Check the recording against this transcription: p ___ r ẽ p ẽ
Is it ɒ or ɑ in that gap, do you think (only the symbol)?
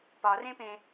ɒ